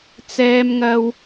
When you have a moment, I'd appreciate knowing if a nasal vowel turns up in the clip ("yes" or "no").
no